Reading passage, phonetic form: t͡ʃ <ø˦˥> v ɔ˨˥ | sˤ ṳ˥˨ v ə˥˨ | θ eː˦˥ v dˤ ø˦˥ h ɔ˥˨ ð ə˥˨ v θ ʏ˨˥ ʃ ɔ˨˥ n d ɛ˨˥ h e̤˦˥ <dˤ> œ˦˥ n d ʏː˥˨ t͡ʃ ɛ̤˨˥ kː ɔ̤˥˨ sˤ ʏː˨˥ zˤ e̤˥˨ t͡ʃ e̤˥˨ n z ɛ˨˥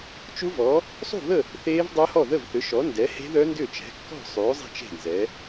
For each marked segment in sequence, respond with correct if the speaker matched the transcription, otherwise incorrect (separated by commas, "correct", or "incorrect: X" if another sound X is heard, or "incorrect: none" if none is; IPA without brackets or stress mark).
incorrect: u˦˥, incorrect: ð